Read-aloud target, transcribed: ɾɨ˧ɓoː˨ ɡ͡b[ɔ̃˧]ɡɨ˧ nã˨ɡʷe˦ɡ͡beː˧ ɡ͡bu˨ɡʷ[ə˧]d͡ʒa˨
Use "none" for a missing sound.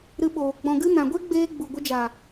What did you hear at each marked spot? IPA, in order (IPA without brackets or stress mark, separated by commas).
ɔ̃˨, ə˧